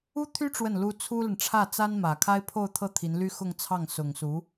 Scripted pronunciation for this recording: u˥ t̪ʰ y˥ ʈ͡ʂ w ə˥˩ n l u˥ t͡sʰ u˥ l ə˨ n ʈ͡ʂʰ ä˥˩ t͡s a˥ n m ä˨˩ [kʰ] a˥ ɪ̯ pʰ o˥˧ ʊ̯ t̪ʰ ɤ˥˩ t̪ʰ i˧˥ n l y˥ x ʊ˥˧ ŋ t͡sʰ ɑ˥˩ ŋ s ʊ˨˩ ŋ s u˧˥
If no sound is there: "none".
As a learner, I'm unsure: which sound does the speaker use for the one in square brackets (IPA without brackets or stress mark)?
kʰ